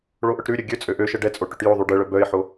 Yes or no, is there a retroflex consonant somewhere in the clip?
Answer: yes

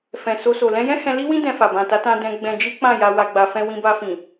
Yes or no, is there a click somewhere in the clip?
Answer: no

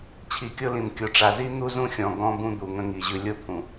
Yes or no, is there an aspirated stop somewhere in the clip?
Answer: yes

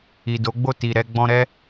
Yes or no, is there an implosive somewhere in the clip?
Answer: no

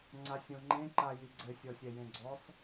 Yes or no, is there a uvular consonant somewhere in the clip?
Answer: no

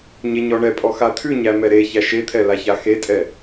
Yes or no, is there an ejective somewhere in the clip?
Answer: yes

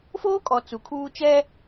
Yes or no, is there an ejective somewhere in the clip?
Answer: yes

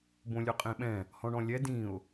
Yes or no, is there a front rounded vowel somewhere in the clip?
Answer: no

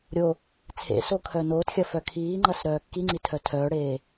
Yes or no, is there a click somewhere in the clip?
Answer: yes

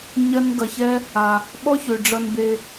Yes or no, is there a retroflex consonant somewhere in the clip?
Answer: yes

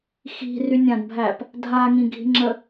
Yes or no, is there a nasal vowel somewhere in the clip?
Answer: yes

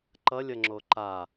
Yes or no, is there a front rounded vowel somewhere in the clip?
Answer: no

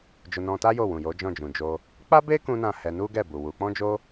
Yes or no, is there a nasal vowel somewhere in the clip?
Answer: yes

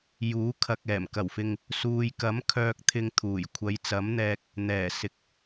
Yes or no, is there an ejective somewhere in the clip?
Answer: no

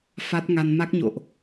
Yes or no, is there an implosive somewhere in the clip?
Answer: no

